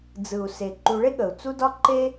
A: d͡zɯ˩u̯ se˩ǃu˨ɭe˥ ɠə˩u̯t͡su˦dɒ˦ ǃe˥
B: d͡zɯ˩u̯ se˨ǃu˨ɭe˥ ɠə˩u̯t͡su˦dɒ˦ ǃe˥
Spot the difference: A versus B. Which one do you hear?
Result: A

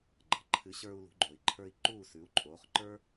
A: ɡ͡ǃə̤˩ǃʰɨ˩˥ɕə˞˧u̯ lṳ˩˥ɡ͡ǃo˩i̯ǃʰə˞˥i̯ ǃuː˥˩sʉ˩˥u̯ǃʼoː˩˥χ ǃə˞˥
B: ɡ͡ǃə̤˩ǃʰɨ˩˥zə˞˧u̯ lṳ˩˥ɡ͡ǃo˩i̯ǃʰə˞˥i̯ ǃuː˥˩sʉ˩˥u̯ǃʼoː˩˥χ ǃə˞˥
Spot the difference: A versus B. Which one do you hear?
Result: A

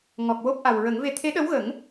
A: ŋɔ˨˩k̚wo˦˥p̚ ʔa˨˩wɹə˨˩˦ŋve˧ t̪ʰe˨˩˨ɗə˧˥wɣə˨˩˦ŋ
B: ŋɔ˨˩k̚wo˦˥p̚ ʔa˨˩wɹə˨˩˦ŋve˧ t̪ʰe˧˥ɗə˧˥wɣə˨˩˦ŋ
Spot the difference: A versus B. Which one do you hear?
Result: B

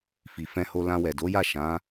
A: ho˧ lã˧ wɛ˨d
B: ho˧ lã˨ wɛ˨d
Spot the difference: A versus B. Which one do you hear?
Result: A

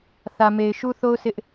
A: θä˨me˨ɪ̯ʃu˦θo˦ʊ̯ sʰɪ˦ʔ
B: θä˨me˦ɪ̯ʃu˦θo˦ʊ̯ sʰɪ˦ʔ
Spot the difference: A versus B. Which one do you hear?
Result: A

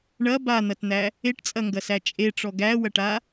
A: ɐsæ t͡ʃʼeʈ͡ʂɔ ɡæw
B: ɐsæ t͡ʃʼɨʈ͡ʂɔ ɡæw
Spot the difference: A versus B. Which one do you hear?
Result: A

